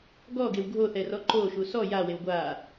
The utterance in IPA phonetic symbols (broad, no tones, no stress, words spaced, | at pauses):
ɡɔɡew ɡʱoθɛrɔ ǃoʃu sɔ jawew ɡʷa